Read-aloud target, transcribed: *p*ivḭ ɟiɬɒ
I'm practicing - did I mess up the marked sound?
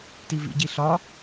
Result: yes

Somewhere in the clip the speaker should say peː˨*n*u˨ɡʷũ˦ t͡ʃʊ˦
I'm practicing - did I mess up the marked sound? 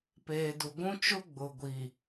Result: yes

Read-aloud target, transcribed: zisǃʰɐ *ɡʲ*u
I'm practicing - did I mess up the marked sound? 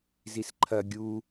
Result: no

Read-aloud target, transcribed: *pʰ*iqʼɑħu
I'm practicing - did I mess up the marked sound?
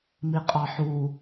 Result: yes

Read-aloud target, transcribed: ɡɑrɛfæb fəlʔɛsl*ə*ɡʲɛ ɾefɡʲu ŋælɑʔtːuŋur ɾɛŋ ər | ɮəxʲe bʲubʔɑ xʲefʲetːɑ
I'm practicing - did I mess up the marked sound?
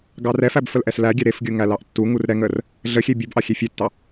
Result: yes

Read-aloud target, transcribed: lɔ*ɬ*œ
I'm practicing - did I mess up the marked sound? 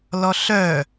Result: no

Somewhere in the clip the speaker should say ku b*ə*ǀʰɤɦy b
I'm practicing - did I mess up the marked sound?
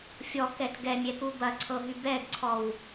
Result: yes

